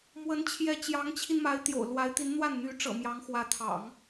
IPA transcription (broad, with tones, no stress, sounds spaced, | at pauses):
m w ə˧˥ n t͡ɕʰ j ɛ˧˥ t͡ɕ j ɑ˧˥ ŋ t͡ɕʰ i˧ n m a˧˥ ɪ̯ t̪ j o̰˨˩ ʊ̯ l w a˧˥ ɪ̯ t̪ i˧˥ n n̪ w a˥˩ n n̪ y˧˥ ʈ͡ʂ ɤ̰˨˩ m j ɑ˧˥ ŋ x w ä˧˥ t̪ʰ ɑ̰˨˩˦ ŋ